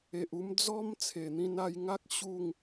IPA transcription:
e˨ ʔ u˧ m d͡z ɔ˦ m t͡sʰ e˨˩ n̪ ĩ˧ n a˧ j ŋ a˦ k̚ ɕ u˥˧ ŋ

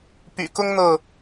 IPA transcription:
p y̰˨˩ k ʊ˦ ŋ n̪ ɤ˥˨

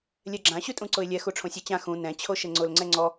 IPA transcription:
lʲ ɛ ɡ͡ǁ ã ɕ ʉ tʼ ũ ǀ ʊ ɪ̯ lʲ ɛ x u ʈ͡ʂʰ õ sʲ a t͡ɕ ã x ũ n ɛ̃ t͡ɕʰ o ʃ ɘ ŋ͡ǀ ʊ l ŋ͡ǀ ɛ ŋ͡ǀ ɔ

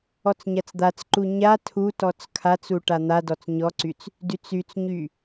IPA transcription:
ɔ t͡s ɲ a t͡s d̪ a t͡s ǃ u ɲ a tʰ u t ɔ t͡s kʰ a t͡s u ʈ a n̪ a d ɔ t͡s ɲ ɔ ǀ y t͡s | d y t͡s y t͡s ɲ y

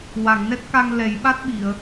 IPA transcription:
w a˨˩˨ ŋ n ɛ˦˥ t̚ k a˧ ŋ l ɛ˨˩˦ j ɓ a˦˥ t̚ ɓ i˨˩˨ ə̯

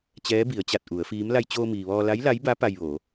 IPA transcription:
t͡ɕ ɛː˧˥ b i˩˧ ə̯ t͡ɕ a˧˩ t̚ ʔ u˩˧ ə̯ f iː˧˥ m l a˧ j t͡ɕ oː˧ m iː˩ ʋ ɔː˧ l a˧˥ j l a˧˥ j b a˧˥ p a˧ j ʋ oː˩˧

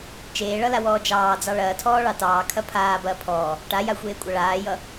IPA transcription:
t͡ʃ eː ɭ ʌ l a w ɔː d͡ʒ ɑː d͡z ɑ ɭ ɐː tʰ ɔː ɭ ɑ t ɑː kʰ ɐ pʰ aː b ɐː pʰ ɔː | ʈ a j a xʷ eː kʷʼ ʌ ɭ aː j ʌ

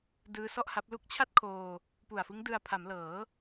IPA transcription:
d ɯː˦˥ s ɔ˥˩ ʔ h a˦˥ p̚ l u˦˥ k̚ t͡ɕʰ a˥˩ t̚ kʰ oː˧ | p u˨˩ a̯ f ɯ˦˥ ŋ d ɯ˧ a̯ pʰ a˩˦ m l ɤː˩˦

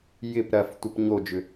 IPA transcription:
j ɪ p ɾ ɐ f tʷ ə p ɲ o d͡ʒ ʏ

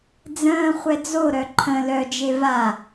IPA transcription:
d͡z ə̃ː χʷ ɛ d͡z o ɾ œ ǃʰ ə̃ l œ d͡ʒ e v a

